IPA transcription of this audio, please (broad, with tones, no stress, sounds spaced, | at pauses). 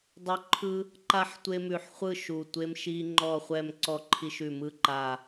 dˤ ɵ˦ ǃʰ ɯ˦ | ǃ a˥˨ ħ tʷ e˦ m ʉ˧˩ ħ χʷ ɯ˥˨ ʃ u˧˩ tʷ e˦ m ʃ i˦ ŋ͡ǃ ɔ˥˨ χʷ ɛ˥˨ m ǀ ɔ˥˨ ǃʰ i˦ ʃ ʉ˧˩ m ɯ˥˨ ǃ a˧˩